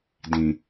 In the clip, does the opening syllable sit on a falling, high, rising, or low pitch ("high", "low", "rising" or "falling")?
low